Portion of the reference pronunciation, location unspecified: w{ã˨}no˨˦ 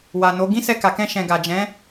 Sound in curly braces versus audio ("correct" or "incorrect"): incorrect